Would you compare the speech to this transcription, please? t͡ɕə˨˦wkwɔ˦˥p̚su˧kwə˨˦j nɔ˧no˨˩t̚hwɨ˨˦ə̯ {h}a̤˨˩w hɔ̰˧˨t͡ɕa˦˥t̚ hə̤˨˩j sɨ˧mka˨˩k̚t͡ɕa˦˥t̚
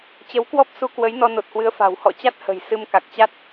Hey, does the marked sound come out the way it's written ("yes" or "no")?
no